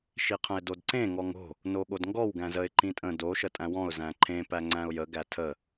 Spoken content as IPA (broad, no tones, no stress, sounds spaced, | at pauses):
ʃ i qʰ ə̃ ɪ̯ d o d ǀ ẽ ŋ ɔ ŋ o̤ | n o ɠ o d ŋ ɡ ɔ w ɡ æ̃ z ə ɪ̯ ǃ ĩ tʼ ə̃ d o ʃ ə tʼ æ̃ w ɔ̃ ʊ̯ z æ̃ ǃʰ ẽ p æ ŋ͡ǀ æ̃ ʊ̯ j ə ɡ æ tʰ ə